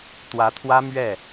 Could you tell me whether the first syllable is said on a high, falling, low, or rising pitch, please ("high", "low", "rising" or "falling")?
rising